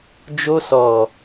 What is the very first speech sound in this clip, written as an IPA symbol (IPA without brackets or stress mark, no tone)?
d͡ʒ